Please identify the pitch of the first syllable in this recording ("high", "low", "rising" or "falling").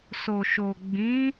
low